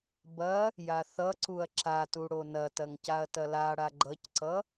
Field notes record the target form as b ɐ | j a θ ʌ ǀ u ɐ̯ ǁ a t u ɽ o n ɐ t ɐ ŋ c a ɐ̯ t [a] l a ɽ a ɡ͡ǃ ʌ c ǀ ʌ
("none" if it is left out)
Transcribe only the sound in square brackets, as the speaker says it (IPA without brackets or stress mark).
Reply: ɐ